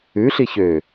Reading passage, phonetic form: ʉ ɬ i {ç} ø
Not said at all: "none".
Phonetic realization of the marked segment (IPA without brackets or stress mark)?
ç